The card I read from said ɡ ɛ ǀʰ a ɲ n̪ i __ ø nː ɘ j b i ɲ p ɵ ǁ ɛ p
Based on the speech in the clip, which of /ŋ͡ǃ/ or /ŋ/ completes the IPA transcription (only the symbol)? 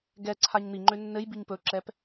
ŋ͡ǃ